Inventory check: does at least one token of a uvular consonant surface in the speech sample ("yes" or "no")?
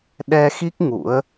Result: no